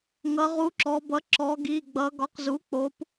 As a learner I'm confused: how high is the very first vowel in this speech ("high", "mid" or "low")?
mid